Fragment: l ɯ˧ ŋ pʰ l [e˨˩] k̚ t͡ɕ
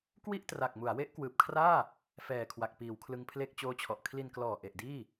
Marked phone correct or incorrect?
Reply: incorrect